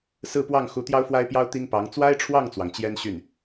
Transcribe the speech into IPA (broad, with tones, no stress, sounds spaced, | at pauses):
s ɹ̩˥˧ p w ɑ˥˩ ŋ x u˧˥ t̪ j ɑ˥ ʊ̯ f w a˥ ɪ̯ p j ɑ˥ ʊ̯ t̪ i˥ ŋ p ɑ˧˥ ŋ t͡s w a˥ ɪ̯ ʈ͡ʂʰ w ɑ˥˩ ŋ t͡s w ɑ˩ ŋ t͡ɕ j ɛ˥ n ɕ y˥˩ n